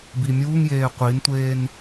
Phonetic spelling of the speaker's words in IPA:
b i mʲ uː ŋ j eː qʷ i n tʷ eː n

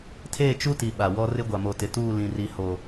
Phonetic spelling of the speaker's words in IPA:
tʰ eː˦˨ t͡ʃ u˦ t i˨ ɓ a˨ w ɔ˦ r ɪ˦ ɡʷ a˨ m o˨ t ɪ˨ t uː˦˨ l ĩ˨ r i˨ h o˨

